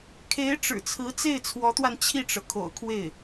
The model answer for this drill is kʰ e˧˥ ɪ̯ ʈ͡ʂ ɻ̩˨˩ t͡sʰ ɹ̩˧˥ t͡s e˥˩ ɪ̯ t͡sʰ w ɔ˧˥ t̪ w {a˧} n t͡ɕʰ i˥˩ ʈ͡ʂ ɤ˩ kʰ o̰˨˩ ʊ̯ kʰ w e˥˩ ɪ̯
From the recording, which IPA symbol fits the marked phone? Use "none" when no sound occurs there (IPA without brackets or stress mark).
a˧